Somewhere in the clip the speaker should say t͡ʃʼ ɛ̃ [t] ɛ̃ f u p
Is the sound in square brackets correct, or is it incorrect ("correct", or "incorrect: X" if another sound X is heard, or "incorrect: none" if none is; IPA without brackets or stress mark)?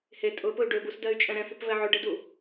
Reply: incorrect: ɾ